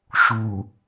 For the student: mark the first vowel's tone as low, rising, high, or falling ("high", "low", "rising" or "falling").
low